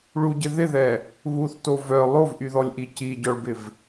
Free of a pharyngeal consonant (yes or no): yes